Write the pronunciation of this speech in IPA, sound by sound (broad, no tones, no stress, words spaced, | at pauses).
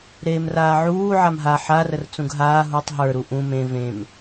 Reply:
ɾeːmraːʕuː ʕamɦa ħarər t͡sũɡɦaː ɦutˤ ɦə˞ɾu ʔũ mẽ vẽm